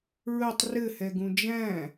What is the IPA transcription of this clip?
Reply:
ɹətˤ rɘhɛɡũ d͡ʒæ̃

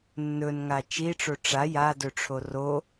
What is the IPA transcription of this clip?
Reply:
nːɵnŋa t͡ʃiʈ͡ʂo ʈ͡ʂa jadɵʈ͡ʂʰo ro

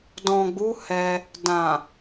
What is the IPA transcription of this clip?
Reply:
dɔ̃˨ɡ͡bu˨˦ hɛ˧ | dã˨

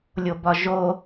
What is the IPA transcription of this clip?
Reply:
lʲobɒʒo

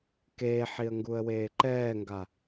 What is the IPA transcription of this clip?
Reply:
keːħiə̯ŋɡuə̯ weːǃɛːŋɡa

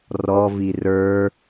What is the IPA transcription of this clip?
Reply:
rɔvi rə˞

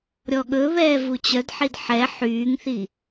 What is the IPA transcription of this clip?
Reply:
ɾʲɔɠɵβɛː vut͡ɕœdħid ħɛ ħyːŋθi

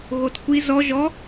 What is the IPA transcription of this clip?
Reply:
ɣotkʷi zɔ ʒɔ

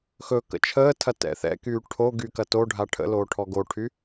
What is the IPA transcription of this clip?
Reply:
xɵ kə̰t͡ʃʰəːtʰɐ tɛ̰θɛ̰kyː ʈʰo ɡyːkɐtoɖʱa ʈʰə̰loː ʈʰɔɡoʈʰy

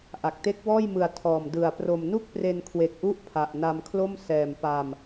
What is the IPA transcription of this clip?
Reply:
ʔa˨˩k̚te˦˥k̚wɔː˥˩jmɯ˧a̯ tʰɔː˨˩mdɯ˨˩a̯ pro˨˩mnu˥˩k̚pre˧nkʰwe˨˩k̚ ʔu˥˩ʔpʰa˨˩ʔna˧mkʰlo˥˩m sɛː˨˩mpaː˧m

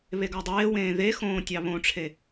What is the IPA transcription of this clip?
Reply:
βeɡɑdˤeːwẽː ðe xõːtʲɑβõʈ͡ʂʰe

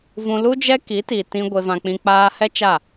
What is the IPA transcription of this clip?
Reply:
vũ˧lu˦d͡ʒɛ˦ ki˨˦ti˨tĩ˧ ɡʷe˧vã˧k͡pĩ˧ k͡paː˧hɛ˦t͡ʃa˦˨

